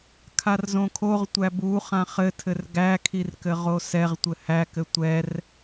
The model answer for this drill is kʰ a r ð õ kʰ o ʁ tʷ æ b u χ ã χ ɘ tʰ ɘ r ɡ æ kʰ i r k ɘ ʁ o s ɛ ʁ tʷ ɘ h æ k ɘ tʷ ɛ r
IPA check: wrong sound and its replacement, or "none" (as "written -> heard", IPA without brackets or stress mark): ð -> z